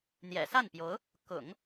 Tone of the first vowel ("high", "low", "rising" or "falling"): low